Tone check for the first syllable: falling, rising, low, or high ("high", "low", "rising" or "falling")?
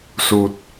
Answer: low